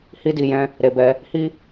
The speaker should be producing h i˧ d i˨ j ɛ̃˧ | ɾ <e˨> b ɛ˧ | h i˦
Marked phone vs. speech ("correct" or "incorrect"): correct